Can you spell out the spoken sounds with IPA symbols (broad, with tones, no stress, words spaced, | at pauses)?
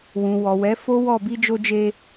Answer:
wũ˨ wɔ˨wɛ˨˦ fo˦wɔ˦˨ bi˧d͡ʒo˧d͡ʒe˧